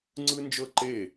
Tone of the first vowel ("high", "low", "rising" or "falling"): high